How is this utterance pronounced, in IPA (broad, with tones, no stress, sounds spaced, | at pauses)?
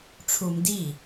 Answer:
ʈ͡ʂʰ u˧ m d i˥˩